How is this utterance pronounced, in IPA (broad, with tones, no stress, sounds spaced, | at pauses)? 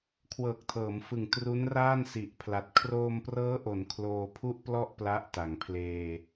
kʰ w ɤː˨˩ k̚ tʰ ɤː˩˦ m f ɯ˨˩ ŋ t r u˦˥ n r aː˥˩ n s i˨˩ ʔ pʰ l a˨˩ t̚ kʰ r oː˧ m p r ɤː˦˥ ʔ o˩˦ n kʰ l oː˧ pʰ u˥˩ ʔ p l ɔ˥˩ ʔ p l a˦˥ ʔ t a˩˦ ŋ pʰ l eː˧